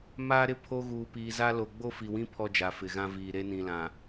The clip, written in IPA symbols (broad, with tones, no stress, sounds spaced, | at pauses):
m aː˦ ɾ ɪ˦ pʰ o˦ ɣ uː˨ p iː˨ z a˦ l o˨ ɡ͡b o˦ f i˨ w ĩ˦ pʰ ɔ˦ d͡ʒ a˨ f ɪ˨ ɣ ã˦ v iː˨ ɾ e˦ n ĩ˨ l ã˨